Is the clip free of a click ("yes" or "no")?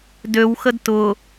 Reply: yes